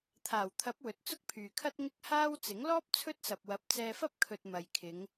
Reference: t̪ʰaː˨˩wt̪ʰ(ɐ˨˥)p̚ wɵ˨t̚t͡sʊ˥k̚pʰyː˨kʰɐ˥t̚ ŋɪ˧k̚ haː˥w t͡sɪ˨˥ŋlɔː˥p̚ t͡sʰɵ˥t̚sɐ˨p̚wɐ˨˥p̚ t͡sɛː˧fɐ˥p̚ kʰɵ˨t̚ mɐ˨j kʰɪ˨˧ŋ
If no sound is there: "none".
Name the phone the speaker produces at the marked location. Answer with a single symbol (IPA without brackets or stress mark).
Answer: ɐ˨˥